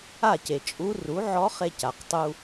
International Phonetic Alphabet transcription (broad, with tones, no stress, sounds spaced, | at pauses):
a˥˩ c e˩ t͡ʃʼ u˧˥ r u˩˥ ʕ ɔ˧˥ χ e˧ c a˩ q tˤ u˧